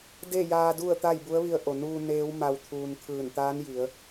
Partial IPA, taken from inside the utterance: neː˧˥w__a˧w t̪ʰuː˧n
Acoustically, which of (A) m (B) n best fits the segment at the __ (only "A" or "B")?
A